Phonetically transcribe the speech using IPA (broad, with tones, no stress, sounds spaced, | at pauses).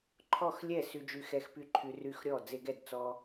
ǃʰ ɔ˥˨ x lʲ ɛ˥˨ s y˦ d͡ʒ y˦ x ɛ˦ x p y˥˨ ǃʰ y˦ r y˥˨ x ɾʲ ɔ˥˨ d͡z e˦ ɡ ɛ˥˨ d t͡s ɔ˦